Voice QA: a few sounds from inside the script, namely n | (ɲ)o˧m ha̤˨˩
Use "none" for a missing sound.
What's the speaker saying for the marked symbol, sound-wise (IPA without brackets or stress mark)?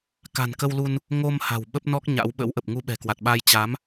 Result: ŋ